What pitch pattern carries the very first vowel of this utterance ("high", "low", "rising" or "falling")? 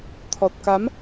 low